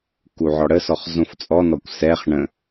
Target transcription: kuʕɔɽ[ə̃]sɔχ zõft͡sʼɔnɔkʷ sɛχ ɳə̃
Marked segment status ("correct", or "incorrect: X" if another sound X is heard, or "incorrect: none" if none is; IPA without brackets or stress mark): incorrect: ə